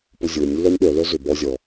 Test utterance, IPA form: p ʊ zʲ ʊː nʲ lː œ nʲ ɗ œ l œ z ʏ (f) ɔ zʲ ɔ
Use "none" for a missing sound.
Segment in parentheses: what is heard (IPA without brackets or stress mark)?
b